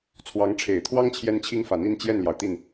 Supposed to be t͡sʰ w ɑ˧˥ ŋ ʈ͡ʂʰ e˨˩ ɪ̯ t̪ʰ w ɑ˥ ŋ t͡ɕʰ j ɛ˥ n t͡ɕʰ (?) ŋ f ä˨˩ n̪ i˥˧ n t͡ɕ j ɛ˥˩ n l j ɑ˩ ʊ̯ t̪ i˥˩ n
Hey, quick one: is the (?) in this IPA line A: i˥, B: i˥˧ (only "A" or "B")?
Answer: A